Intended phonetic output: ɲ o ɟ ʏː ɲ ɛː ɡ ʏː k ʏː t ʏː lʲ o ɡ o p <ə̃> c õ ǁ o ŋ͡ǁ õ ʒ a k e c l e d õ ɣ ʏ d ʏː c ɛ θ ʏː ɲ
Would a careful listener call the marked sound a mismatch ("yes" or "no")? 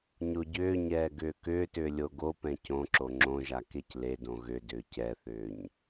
yes